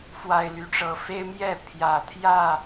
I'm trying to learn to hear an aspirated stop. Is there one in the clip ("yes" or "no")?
yes